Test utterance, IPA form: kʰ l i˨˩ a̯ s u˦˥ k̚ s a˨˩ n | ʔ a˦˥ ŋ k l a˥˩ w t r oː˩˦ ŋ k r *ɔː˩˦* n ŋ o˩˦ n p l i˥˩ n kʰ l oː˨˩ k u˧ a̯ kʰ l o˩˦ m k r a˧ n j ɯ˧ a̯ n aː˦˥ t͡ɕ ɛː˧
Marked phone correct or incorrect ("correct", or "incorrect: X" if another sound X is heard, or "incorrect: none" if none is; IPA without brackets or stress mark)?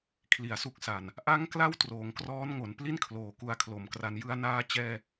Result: incorrect: ɔː˦˥